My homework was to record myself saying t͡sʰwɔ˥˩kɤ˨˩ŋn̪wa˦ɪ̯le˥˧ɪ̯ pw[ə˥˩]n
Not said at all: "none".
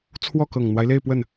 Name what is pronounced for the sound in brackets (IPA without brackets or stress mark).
ə˥˩